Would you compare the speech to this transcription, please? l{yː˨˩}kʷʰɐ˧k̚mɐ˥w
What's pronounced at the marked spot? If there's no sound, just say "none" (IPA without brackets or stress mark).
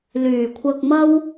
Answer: yː˨˩